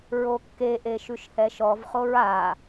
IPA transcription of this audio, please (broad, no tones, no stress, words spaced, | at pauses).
ɹokːeʔe ʃʉʃhɛʃɔvχoɹ a